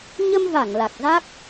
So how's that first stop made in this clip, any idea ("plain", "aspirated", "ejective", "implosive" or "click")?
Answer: plain